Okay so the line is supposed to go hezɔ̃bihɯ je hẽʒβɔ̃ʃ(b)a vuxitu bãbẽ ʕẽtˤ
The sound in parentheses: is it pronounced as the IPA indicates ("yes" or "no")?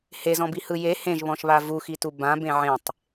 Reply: no